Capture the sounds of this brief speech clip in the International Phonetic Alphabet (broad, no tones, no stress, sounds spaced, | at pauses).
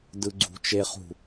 d ɯ ɡ͡ǀ ṳ t͡ʃ e χ ṳ